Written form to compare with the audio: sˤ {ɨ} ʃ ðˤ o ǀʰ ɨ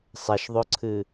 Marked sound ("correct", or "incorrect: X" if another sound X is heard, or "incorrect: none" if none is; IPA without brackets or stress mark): incorrect: ɛ